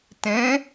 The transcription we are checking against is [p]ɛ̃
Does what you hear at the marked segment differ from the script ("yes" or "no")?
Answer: yes